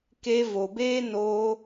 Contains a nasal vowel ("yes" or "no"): no